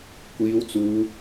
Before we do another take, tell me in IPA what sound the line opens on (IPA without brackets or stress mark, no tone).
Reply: kʷ